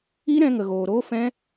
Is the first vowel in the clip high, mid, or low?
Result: high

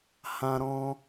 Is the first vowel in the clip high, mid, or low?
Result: low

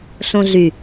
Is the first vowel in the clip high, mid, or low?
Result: mid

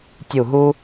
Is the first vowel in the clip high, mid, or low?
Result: high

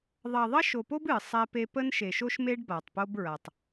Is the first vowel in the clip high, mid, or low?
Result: low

